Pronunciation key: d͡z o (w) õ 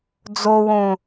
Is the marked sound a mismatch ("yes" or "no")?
no